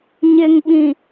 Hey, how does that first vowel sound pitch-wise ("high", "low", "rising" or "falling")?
low